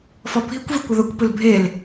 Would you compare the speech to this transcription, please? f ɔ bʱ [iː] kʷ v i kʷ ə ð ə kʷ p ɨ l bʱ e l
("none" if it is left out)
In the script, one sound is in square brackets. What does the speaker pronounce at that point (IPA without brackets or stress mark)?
i